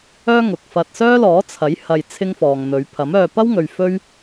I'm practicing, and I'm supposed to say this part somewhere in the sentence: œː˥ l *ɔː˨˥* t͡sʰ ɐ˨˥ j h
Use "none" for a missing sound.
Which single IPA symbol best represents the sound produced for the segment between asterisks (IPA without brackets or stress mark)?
ɔː˨˥